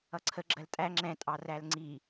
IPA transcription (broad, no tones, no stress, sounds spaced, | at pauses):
ʌ ǀʰ ə ɡ͡ǁ ɜ l tʼ æ ŋ͡ǁ ɛ̃ tʼ ɑ r æ l ŋ͡ǀ i